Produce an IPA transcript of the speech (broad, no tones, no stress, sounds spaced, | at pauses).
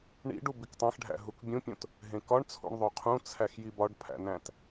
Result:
ɳ ḭ ɖ u b i k tˤ æ̃ x ɖʱ æ̰ ɦ u k bʲ ũ pʲ õ t | ɦ ẽ k ɒ ɳ t͡sʰ ṵ ɳ ðˤ o qʰ ũ t͡sʰ æ x j i b ɒ ɖ pʰ æ̰ n æ̃ t